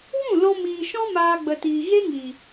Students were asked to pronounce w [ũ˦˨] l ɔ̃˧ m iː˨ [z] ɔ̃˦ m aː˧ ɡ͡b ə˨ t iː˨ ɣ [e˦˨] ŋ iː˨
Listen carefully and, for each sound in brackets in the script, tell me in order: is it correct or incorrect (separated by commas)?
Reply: correct, incorrect, incorrect